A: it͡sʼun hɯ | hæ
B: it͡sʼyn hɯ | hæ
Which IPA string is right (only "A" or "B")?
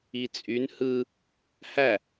B